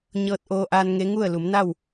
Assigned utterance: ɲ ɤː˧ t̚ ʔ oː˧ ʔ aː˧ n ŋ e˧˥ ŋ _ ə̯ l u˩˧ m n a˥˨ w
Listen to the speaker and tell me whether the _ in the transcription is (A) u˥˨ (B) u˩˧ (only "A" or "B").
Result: A